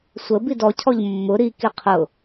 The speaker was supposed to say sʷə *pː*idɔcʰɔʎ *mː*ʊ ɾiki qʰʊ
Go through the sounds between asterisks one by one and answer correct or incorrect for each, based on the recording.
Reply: incorrect: b, correct

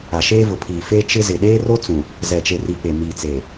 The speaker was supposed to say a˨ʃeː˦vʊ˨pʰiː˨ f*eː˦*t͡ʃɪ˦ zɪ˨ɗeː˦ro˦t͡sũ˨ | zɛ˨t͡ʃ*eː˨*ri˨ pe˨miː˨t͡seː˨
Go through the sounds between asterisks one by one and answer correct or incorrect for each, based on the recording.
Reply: incorrect: e˦, incorrect: e˨

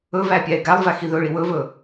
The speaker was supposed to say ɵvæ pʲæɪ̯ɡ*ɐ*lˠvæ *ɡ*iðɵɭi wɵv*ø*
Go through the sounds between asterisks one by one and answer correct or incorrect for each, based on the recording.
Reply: incorrect: æ, incorrect: x, incorrect: ɵ

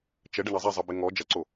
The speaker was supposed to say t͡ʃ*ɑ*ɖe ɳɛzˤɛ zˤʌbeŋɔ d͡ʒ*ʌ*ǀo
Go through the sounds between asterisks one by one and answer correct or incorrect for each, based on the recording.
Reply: incorrect: ə, correct

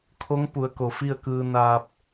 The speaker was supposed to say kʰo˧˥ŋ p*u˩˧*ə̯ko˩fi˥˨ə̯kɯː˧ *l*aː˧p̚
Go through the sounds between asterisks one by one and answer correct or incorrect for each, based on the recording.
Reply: correct, incorrect: n

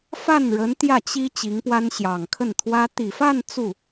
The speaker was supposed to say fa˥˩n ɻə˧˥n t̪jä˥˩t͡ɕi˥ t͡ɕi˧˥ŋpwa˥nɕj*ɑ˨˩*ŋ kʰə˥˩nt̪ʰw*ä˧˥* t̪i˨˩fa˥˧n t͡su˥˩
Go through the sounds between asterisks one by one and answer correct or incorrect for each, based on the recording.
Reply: correct, incorrect: ä˥

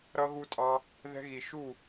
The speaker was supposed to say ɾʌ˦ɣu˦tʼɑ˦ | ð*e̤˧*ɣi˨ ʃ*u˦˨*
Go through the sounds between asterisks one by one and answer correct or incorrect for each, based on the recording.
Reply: incorrect: ɛ̤˧, correct

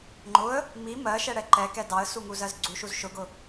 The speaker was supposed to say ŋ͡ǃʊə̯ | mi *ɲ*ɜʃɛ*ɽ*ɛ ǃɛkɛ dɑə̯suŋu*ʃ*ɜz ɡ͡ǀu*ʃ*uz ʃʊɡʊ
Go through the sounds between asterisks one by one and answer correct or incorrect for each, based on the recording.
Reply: incorrect: m, correct, incorrect: z, correct

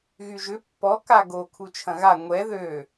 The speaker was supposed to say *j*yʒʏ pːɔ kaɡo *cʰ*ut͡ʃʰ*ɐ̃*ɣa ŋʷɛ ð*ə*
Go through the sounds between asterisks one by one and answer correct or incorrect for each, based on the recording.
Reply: incorrect: ɣ, incorrect: kʰ, correct, incorrect: ø

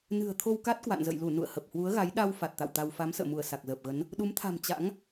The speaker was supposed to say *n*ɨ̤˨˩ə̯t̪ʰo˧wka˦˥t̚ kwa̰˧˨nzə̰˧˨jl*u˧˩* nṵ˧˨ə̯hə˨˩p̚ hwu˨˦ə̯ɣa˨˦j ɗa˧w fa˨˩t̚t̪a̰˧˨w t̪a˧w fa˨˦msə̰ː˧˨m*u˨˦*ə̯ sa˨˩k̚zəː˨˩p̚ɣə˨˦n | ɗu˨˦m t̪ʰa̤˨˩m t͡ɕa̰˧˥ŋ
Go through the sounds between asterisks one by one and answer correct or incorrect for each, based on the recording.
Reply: correct, correct, incorrect: u˧˩

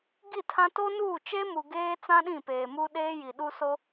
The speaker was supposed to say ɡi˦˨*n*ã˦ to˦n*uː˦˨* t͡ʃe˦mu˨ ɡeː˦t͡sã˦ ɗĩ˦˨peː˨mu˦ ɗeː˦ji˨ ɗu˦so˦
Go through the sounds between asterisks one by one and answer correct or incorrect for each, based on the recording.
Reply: incorrect: tʰ, correct

